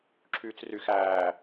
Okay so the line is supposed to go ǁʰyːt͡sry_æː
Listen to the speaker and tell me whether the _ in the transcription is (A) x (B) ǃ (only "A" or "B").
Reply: A